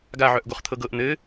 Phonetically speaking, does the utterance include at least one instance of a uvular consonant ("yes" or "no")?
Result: yes